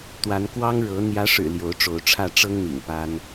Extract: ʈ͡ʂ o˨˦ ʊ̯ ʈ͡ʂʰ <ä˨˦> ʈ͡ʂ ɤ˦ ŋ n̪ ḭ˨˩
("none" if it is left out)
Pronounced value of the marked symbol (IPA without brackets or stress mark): ä˥˨